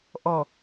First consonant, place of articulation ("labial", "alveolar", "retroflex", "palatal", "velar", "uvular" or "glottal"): glottal